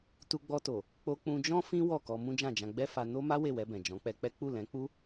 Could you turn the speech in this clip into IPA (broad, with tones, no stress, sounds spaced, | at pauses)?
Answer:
t u˧ ɡ͡b ɔ˧ t o˨ | k͡p o˧ k͡p ũ˧ d͡ʒ ɔ̃˦ f ĩ˦ w ɔ˦˨ k ɔ˧ m ũ˦ d͡ʒ ã˦˨ d͡ʒ ã˧ ɡ͡b ɛ˦ f a˧ n o˦ m a˦ w e˦˨ w ɛ˧ b ɛ̃˨ d͡ʒ ɔ̃˨˦ k͡p ɛ˧ k͡p ɛ˦ k͡p u˦˨ l ɛ̃˨˦ k͡p u˦